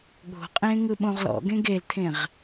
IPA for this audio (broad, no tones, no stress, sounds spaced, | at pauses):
ɠ o̤ qʼ ẽ ŋ ɯ ɓ õ ʁ l ɔ̰ ɡ ẽ ɡ e l t̪ʰ ẽ ʁ